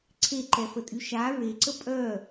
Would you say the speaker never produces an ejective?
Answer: no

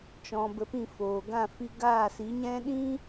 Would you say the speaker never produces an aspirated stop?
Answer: yes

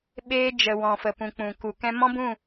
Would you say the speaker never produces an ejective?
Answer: yes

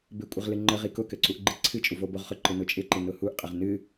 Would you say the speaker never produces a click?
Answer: no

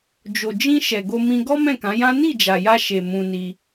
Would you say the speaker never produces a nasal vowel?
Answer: no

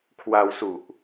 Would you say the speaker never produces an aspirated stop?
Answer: no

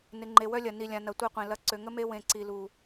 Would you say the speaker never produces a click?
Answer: no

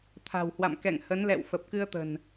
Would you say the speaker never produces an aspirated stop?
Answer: no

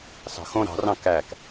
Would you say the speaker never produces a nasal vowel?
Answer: no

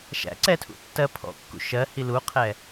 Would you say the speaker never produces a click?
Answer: no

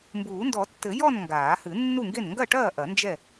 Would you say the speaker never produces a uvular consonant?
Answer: yes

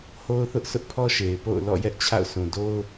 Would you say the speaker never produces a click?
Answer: yes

